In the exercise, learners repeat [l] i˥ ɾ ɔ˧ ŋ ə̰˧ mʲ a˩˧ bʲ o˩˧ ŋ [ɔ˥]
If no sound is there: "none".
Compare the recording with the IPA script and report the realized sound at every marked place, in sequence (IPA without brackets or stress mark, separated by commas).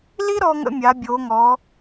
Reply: l, ɔ˩˧